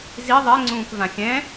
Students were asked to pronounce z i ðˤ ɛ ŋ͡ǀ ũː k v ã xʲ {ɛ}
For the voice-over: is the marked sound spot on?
no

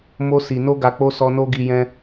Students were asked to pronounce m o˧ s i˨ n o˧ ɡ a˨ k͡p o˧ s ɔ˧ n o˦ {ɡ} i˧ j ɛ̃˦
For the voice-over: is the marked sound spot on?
yes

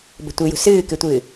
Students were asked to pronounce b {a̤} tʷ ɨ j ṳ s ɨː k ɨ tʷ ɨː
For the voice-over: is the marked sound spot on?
no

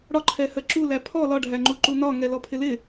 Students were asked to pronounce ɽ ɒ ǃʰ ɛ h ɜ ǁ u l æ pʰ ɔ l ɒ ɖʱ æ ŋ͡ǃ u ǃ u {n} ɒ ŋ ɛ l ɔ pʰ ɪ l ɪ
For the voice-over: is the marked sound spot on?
yes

